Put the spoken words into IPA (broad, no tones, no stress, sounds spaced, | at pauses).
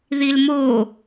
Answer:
ð i l m oː